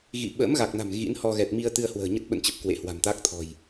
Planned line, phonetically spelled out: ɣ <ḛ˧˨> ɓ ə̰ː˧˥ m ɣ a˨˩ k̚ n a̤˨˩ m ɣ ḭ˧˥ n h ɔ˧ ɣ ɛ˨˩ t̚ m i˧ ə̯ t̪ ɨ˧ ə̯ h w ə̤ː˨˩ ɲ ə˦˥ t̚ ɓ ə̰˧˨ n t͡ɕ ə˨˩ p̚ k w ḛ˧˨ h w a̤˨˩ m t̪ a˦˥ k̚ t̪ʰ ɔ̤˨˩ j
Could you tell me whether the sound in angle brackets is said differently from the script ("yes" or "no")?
yes